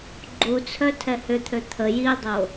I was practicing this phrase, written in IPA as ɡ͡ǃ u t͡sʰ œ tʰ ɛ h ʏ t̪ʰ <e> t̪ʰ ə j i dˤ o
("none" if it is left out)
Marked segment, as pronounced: ø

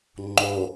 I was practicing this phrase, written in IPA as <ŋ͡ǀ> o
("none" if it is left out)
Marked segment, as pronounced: ŋ͡ǃ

